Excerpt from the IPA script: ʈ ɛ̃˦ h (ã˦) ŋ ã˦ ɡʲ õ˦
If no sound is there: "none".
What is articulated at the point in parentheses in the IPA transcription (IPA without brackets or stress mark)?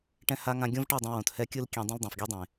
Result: a˦